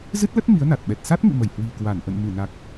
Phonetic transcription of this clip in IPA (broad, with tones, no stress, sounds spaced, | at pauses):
z ɨ˦˥ t̚ l ə˦˥ t̚ m i˨˦ ə̯ n a˨˩ t̚ ɓ ɛ˨˩ t̚ s a˦˥ t̚ ŋ ḭ˧˨ m ə˧˩ j h w i̤˨˩ k w a˧˩ n ʔ ə̰˧˨ n m ɨ˧˩ n a˨˩ k̚